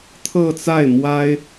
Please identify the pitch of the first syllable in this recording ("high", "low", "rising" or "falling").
falling